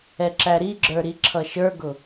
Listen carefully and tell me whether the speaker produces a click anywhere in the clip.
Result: yes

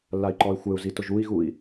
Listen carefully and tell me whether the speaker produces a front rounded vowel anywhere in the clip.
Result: yes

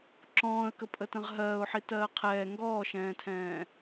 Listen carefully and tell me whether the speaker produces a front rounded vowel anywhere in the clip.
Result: no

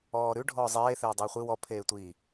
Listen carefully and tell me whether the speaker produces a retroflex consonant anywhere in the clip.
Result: yes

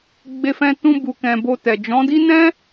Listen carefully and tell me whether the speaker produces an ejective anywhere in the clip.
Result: no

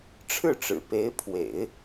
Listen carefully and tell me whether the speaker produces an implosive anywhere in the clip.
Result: no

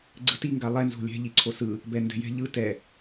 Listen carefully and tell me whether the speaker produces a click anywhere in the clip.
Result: yes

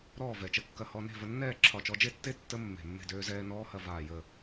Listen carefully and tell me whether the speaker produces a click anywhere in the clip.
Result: yes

